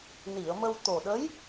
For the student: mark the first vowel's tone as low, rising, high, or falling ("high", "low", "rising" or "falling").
low